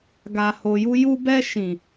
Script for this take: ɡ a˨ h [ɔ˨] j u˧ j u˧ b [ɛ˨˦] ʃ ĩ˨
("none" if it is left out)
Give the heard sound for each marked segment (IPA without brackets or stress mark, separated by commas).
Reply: o˨, ɛ˧